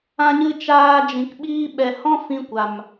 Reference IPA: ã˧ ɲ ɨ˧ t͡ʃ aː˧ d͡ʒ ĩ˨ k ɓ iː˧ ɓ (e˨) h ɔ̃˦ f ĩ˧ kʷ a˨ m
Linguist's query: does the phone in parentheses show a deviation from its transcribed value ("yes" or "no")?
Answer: yes